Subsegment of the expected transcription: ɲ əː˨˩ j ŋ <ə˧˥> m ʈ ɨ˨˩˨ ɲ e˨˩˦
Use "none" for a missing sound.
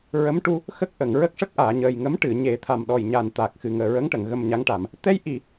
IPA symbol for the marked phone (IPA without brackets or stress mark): ə˧˥